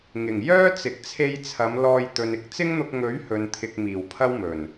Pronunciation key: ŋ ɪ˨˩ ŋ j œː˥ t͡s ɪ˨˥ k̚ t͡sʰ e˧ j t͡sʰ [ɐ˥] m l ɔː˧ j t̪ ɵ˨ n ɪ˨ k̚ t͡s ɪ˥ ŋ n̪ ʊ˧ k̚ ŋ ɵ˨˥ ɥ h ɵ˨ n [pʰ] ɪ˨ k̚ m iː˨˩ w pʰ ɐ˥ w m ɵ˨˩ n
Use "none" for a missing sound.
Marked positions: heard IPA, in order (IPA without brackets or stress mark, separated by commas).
ɐ˨˧, t̪ʰ